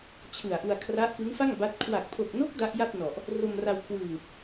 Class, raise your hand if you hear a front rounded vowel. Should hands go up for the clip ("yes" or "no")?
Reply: no